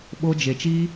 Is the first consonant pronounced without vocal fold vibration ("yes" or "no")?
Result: no